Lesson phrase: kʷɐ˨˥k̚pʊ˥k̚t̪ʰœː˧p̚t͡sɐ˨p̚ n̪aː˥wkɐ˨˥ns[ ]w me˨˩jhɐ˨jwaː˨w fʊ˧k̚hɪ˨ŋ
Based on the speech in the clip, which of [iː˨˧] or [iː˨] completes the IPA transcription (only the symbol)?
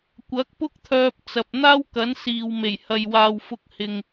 iː˨